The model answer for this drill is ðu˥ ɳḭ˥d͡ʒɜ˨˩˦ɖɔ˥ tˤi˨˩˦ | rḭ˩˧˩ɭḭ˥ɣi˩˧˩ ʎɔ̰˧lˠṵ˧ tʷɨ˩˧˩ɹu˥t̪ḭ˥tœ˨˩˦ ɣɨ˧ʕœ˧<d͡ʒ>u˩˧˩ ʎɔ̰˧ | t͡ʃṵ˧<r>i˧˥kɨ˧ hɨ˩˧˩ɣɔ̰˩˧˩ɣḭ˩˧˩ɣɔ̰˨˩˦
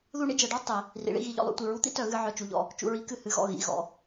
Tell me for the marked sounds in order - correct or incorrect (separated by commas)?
incorrect, incorrect